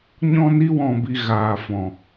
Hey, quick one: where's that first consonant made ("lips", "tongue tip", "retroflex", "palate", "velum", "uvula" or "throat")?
palate